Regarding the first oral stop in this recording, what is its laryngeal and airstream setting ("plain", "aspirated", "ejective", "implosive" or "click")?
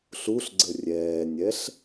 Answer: click